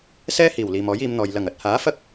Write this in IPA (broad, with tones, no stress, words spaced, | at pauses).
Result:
sɛː˥hiː˨˩w liː˨mɔː˨˥jiː˨˧mn̪ɔː˨j lɐ˨˩ŋɐ˨t̚ haː˨˥fɐ˥k̚